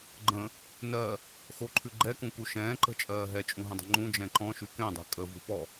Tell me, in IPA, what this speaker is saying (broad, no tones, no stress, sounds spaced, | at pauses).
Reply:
ɡ͡ǃ ə̃ | n ɜ | x o ǃʰ ʉ ɡ͡ǃ ɛ k ũ k u ʃ ɛ̃ː ǃ ə̤ t͡ʃʼ ɜː ɦ ɛ t͡ʃʼ ũ ɦ ə̃ dˤ ə̤ ŋ͡ǃ ũ d͡ʒ ɛ̃ ǃ ɔ̃ ʃ ʉ k ɛ̃ dˤ ɛ̤ kʼ ə v ṳ p ɔ